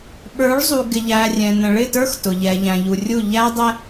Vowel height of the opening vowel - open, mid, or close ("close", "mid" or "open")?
mid